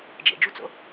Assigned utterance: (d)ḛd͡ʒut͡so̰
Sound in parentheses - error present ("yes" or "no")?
yes